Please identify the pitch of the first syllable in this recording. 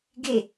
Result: falling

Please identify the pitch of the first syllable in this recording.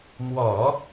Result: low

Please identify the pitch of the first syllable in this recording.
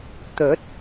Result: rising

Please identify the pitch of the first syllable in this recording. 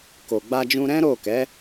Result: low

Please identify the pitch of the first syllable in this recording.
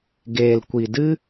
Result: low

